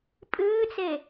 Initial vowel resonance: oral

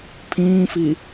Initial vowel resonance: nasal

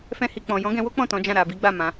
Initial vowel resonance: nasal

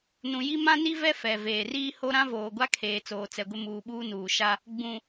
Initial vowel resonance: nasal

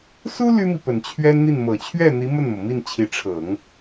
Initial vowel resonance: oral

